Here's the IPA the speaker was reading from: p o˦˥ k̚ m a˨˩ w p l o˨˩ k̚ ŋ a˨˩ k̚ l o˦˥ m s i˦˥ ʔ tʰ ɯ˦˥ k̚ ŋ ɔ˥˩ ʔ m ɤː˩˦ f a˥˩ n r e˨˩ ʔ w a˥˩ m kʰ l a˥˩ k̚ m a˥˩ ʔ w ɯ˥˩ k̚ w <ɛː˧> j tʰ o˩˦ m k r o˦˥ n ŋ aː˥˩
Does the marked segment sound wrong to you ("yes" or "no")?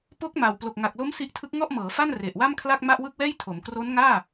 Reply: yes